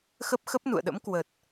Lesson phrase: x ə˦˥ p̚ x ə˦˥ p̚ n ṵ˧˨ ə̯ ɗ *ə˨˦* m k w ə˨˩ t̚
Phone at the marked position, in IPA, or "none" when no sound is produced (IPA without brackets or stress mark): ə̰˧˥